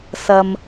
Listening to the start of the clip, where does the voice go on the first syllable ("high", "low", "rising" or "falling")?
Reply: low